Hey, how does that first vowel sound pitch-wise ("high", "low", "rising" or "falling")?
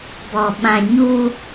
low